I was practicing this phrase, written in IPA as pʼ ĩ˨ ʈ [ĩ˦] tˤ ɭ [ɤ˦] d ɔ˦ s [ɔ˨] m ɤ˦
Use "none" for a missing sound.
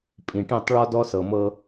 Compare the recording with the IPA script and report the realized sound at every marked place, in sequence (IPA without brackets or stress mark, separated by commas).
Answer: ĩ˦˨, ɔ˦, ɤ˨